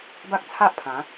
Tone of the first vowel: high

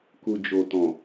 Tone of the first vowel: low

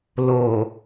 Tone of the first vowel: low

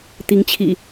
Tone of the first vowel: rising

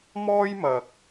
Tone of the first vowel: high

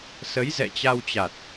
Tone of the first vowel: rising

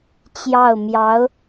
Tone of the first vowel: falling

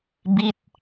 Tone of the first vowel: falling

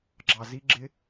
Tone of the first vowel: low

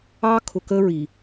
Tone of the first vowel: high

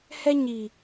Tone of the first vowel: high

